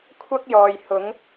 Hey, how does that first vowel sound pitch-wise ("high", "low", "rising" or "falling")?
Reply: high